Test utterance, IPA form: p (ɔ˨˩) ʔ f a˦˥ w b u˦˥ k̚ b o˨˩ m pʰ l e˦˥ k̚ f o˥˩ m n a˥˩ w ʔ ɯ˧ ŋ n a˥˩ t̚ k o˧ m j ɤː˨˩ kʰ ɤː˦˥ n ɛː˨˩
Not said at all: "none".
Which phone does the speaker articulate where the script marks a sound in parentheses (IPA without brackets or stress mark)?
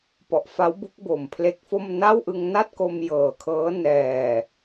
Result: ɔ˨˩